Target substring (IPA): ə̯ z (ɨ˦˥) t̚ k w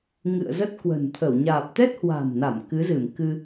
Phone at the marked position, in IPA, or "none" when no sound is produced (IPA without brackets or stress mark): ə˦˥